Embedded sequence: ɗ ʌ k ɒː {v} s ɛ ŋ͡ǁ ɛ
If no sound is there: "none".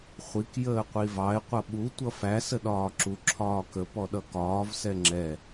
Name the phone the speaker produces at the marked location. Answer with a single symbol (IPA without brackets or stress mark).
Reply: v